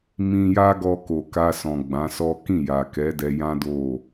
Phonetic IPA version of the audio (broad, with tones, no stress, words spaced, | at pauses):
mĩ˧ja˦ɡɔ˧ ko˨ka˧ sɔ̃˨ɡ͡bã˨˦sɔ˦ kĩ˦˨ja˨ kɛ˨˦dɛ˧jã˦ do˦˨